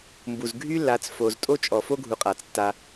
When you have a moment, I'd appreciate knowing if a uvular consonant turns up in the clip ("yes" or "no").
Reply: yes